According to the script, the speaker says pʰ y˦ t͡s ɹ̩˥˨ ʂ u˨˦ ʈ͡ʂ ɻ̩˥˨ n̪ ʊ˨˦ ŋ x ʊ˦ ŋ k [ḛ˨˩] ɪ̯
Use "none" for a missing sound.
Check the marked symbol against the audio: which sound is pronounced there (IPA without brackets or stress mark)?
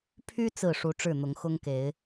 e˨˦